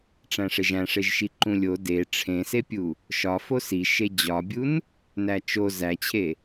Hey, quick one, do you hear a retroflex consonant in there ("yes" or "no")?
yes